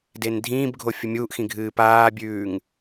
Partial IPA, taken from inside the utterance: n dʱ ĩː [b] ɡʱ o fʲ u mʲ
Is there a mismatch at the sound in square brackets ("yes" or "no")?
no